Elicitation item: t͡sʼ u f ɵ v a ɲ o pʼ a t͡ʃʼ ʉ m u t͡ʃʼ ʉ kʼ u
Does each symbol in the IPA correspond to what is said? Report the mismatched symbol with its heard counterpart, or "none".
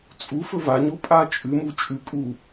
none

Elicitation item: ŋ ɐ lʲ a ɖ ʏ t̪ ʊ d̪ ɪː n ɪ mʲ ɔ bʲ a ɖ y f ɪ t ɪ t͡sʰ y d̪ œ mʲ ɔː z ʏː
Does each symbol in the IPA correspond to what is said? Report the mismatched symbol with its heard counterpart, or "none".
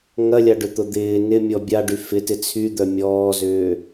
none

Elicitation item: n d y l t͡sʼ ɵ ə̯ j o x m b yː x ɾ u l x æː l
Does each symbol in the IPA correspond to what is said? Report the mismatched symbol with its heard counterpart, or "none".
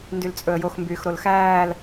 u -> o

